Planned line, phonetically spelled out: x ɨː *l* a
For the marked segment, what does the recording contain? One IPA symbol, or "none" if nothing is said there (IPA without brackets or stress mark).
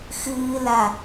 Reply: l